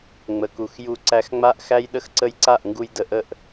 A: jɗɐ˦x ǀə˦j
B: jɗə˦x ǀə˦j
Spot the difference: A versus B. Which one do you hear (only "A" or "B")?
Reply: B